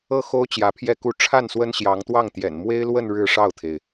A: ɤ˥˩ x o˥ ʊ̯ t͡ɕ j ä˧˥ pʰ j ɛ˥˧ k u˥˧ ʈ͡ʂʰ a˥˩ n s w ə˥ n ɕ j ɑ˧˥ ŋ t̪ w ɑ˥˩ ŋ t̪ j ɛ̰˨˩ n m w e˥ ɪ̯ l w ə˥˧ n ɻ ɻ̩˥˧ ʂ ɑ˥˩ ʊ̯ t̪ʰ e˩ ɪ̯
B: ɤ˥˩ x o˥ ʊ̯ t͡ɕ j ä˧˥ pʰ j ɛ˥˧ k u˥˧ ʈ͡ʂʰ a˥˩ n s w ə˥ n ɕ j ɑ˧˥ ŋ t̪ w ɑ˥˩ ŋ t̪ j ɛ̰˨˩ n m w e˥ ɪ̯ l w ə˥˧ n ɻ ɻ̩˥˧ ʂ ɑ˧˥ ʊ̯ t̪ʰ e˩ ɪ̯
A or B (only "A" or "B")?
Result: A